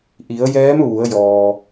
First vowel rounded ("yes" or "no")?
no